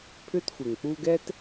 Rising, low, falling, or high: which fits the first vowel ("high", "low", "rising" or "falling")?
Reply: high